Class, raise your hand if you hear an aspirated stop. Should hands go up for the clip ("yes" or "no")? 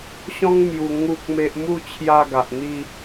yes